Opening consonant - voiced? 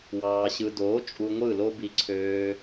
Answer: yes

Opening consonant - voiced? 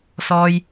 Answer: no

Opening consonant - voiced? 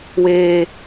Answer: yes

